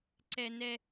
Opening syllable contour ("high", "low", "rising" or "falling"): high